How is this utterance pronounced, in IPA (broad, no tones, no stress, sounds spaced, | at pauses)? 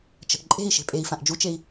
t͡ʃ ə̤ ʔ ǃʼ e̤ i̯ ʃ e̤ pʼ e i̯ f ã ʔ d͡ʒ u t͡ʃ e i̯